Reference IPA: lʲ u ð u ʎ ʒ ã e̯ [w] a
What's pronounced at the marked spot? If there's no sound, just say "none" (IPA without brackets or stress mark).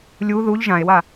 w